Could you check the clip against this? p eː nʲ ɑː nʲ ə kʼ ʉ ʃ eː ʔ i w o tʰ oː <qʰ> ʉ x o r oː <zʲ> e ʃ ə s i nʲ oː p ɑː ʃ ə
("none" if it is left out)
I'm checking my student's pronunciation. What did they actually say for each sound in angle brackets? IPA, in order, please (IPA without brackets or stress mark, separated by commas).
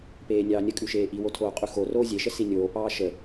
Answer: qʼ, zʲ